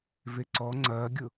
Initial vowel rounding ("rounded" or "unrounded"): unrounded